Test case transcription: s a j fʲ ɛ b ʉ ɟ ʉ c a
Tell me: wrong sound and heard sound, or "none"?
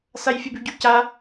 none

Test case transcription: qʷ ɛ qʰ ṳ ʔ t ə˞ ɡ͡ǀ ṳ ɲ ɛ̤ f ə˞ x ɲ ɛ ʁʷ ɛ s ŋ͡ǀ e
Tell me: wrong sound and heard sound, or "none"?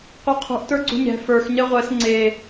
none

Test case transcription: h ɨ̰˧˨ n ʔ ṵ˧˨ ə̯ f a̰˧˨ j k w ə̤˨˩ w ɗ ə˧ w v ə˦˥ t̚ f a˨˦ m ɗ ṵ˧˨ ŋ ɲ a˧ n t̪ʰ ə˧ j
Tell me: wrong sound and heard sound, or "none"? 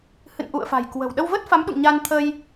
a̰˧˨ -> a̤˨˩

